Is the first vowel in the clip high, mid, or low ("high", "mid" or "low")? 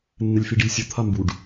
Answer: mid